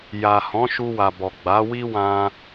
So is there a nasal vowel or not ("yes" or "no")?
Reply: yes